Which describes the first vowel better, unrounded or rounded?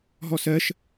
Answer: rounded